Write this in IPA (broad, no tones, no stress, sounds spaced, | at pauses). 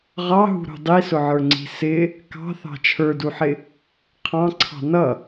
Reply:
ʁ ɑ ɦ ṳ ɾ ṳ dˤ i s ʊ ʕ ə˞ ŋ͡ǀ i̤ s ɪ | k ɑ̤ θ ɑ̤ t͡ʃʰ ə˞ d u ħ ɪ | qʰ ɑ̃ ǀʰ ɑ̤ n ʌ